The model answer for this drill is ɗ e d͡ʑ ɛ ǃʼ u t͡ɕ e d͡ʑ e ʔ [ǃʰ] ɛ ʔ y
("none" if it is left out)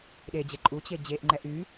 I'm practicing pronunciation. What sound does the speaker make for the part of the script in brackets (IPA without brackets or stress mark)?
ŋ͡ǃ